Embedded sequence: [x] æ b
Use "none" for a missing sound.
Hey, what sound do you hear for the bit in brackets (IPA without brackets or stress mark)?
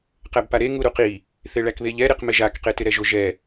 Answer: q